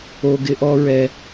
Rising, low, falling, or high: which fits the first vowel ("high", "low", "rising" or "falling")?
low